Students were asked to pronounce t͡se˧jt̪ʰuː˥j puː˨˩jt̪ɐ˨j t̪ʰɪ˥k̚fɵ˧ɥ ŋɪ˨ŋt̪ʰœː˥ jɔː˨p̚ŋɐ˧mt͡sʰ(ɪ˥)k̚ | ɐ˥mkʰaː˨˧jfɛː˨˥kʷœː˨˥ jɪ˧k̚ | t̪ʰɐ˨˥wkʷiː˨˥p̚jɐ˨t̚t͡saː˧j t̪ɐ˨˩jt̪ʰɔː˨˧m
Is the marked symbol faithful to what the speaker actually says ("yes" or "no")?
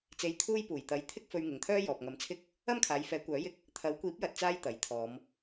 yes